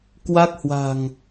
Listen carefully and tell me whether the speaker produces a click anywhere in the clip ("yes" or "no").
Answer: no